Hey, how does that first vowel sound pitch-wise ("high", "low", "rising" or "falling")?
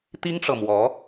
high